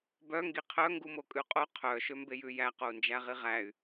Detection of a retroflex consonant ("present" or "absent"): absent